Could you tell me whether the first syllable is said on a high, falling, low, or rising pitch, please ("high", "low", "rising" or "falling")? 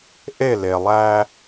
falling